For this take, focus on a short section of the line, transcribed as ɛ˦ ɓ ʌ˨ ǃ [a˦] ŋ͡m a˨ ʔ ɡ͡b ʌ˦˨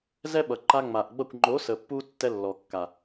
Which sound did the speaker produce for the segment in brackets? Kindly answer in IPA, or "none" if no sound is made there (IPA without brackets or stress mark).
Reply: a˧